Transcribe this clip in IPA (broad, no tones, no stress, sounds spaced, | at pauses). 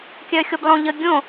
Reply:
kʲ œ xʲ o b lˠ õ ʎ ə ɡʲ õ